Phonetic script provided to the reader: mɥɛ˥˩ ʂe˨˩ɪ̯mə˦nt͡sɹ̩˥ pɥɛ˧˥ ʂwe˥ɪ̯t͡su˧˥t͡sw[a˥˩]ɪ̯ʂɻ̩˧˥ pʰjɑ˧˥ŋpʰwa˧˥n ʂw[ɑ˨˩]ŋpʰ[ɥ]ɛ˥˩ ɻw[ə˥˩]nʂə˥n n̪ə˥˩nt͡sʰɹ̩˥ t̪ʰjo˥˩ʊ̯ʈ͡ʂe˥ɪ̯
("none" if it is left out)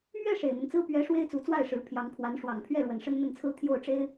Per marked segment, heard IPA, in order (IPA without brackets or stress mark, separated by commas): a˥˩, ɑ˨˩, ɥ, ə˨˩